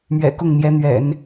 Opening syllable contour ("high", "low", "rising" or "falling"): low